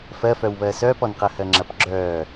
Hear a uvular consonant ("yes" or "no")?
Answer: yes